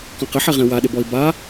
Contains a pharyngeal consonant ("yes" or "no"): yes